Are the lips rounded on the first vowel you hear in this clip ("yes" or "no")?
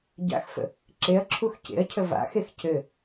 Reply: no